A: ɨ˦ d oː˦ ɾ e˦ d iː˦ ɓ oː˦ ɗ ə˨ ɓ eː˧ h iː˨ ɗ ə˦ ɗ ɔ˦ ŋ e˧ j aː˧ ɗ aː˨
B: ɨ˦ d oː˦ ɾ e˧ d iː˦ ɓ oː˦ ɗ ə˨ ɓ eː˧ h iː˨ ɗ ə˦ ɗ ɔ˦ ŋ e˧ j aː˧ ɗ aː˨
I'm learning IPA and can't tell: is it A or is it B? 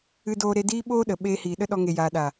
A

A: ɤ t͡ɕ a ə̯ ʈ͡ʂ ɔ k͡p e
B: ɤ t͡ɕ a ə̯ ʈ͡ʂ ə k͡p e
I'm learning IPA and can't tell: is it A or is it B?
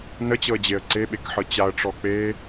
A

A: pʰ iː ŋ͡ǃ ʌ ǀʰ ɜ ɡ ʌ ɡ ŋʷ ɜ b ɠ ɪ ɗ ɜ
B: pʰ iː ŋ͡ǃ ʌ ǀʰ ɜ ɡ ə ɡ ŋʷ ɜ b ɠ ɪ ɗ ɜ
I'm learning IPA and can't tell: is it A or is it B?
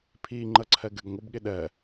B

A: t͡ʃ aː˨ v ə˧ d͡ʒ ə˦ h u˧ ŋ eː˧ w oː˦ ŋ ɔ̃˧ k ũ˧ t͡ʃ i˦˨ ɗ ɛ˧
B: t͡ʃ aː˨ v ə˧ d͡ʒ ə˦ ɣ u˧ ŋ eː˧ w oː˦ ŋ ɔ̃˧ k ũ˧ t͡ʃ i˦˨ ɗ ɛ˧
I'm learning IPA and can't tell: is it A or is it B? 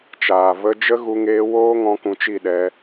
B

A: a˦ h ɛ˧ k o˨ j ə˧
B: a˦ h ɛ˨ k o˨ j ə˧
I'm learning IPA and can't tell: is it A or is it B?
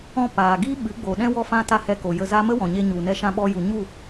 A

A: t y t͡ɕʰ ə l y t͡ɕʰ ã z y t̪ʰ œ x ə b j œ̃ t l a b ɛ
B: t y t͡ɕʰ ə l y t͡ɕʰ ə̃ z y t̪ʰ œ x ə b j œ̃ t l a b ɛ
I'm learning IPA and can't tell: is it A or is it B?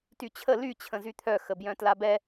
B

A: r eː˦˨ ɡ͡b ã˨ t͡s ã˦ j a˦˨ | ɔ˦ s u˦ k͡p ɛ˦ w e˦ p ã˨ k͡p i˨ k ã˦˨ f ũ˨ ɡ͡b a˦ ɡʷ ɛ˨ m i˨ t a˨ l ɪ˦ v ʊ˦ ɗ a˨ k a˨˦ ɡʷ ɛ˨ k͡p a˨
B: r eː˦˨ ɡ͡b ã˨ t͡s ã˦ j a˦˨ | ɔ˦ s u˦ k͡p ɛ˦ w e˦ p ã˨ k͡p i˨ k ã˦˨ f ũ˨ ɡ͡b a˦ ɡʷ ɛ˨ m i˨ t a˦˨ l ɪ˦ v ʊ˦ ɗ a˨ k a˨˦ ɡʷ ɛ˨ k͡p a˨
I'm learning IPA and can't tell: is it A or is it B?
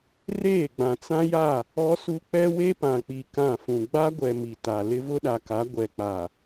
A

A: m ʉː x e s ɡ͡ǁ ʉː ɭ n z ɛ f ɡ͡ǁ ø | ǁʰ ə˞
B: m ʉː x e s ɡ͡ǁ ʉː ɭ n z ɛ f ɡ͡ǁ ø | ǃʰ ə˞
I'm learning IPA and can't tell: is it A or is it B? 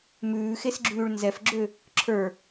A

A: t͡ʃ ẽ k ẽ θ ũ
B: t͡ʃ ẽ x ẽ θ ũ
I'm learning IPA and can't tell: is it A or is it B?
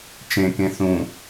A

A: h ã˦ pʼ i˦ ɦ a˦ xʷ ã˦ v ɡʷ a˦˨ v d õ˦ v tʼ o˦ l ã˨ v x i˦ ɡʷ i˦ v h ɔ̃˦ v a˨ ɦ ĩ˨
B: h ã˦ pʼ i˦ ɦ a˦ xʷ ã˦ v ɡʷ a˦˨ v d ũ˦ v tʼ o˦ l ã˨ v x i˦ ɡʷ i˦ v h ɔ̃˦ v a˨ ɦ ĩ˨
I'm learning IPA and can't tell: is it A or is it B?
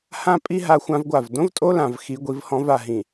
A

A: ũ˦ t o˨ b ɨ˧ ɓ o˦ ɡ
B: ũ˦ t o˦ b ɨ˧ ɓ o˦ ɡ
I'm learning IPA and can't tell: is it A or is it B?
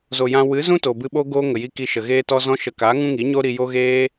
A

